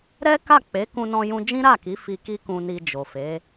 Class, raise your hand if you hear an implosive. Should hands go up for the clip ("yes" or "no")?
no